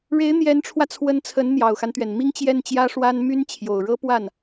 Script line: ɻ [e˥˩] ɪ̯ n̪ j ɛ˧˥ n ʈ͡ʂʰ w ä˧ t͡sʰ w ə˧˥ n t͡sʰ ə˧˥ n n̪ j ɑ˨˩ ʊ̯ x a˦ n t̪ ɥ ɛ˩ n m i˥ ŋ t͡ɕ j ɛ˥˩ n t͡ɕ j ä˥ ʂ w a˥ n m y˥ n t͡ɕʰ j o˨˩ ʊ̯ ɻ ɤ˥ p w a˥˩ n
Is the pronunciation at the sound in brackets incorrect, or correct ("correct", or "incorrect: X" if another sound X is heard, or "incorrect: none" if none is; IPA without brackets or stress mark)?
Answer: incorrect: e˧˥